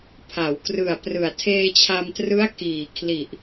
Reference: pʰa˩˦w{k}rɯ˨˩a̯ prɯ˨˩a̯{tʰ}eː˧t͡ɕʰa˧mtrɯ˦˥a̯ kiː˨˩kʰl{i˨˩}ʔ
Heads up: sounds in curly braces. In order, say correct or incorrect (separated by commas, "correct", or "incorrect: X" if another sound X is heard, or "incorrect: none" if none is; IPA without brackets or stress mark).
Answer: correct, correct, correct